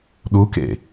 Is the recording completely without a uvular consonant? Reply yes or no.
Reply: yes